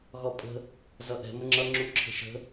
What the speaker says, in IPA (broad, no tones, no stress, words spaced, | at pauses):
ɣɔpʼə̤ | zʌʔɛ̤ məŋ͡ǁʌ ŋ͡ǁu ǁʰə̤ʃə̤